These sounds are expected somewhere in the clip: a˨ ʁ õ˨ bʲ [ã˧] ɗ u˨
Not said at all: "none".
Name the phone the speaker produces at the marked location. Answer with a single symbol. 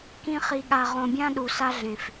ã˦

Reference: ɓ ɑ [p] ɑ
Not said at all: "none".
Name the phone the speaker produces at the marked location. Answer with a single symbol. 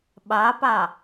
p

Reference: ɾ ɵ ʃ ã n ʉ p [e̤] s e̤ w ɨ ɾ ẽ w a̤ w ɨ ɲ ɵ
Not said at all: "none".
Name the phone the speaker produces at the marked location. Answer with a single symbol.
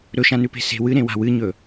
e̤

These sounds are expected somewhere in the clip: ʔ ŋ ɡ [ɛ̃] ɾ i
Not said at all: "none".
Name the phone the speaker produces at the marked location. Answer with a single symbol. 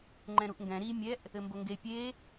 ɛ̃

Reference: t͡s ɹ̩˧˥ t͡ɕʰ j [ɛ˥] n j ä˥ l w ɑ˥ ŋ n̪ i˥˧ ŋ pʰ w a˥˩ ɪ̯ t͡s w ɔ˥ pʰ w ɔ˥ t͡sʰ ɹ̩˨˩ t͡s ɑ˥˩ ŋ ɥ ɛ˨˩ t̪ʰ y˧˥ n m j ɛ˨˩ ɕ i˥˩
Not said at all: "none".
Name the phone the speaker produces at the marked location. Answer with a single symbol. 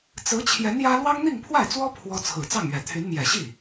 ɛ˧˥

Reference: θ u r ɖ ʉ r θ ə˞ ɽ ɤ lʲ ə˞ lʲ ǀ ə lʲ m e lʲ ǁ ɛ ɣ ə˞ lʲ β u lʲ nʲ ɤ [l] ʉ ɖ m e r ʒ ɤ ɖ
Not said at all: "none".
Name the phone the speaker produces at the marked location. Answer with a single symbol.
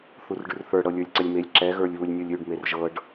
lʲ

